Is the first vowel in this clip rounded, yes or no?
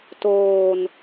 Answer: yes